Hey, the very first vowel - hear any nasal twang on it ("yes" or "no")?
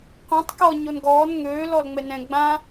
yes